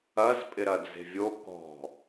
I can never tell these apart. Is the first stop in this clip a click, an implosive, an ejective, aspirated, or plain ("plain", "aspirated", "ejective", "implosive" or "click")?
ejective